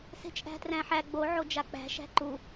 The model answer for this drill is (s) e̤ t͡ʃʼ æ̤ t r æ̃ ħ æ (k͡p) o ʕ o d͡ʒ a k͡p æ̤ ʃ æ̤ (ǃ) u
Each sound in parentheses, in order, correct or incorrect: correct, incorrect, correct

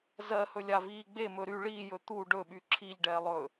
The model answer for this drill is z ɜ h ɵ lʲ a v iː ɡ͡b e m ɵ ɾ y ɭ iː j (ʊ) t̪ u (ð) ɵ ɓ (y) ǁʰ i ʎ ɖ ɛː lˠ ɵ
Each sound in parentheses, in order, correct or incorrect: incorrect, incorrect, correct

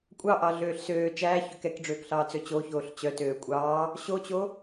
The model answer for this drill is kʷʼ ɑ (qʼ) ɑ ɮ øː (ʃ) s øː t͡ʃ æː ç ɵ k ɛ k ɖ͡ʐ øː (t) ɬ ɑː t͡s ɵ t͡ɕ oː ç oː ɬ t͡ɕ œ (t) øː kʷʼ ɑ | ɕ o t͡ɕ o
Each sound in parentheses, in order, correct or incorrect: incorrect, incorrect, incorrect, correct

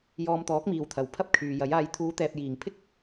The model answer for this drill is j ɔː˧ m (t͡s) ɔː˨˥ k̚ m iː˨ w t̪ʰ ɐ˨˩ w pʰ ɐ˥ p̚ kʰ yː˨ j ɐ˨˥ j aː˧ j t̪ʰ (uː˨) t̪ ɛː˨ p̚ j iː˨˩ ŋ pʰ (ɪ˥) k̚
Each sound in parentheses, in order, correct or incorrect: incorrect, incorrect, correct

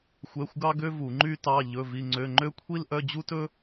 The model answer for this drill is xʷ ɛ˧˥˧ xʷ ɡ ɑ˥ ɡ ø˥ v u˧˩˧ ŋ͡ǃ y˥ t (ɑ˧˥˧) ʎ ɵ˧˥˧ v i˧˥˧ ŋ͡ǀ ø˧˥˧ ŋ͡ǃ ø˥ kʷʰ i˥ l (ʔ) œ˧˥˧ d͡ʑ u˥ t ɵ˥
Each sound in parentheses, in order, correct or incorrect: correct, correct

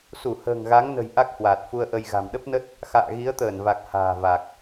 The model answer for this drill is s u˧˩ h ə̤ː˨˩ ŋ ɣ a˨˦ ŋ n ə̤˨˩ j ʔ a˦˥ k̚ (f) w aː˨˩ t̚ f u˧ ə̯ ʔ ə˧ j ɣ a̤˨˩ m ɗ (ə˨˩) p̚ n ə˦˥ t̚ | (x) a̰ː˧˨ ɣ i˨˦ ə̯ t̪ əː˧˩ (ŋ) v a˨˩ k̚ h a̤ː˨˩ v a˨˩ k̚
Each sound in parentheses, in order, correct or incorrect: incorrect, incorrect, correct, incorrect

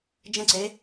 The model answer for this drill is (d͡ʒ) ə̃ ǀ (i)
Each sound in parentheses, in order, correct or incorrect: correct, incorrect

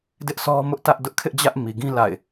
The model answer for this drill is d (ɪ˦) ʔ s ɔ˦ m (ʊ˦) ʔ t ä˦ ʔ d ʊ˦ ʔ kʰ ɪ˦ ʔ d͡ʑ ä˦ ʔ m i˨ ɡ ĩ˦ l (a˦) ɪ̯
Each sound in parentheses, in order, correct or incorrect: correct, correct, incorrect

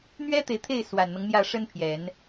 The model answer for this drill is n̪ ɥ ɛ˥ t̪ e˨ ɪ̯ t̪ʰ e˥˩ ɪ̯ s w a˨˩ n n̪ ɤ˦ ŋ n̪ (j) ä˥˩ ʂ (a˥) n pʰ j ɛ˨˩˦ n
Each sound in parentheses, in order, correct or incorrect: correct, incorrect

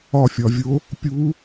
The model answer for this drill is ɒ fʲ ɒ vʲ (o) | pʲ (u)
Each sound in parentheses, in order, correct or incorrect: correct, correct

